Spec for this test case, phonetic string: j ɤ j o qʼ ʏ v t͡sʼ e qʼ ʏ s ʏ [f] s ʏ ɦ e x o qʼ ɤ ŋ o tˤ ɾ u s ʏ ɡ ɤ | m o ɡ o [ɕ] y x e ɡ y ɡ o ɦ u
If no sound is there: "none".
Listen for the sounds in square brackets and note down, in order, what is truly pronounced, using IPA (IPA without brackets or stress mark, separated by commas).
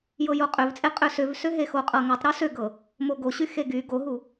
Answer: v, ɕ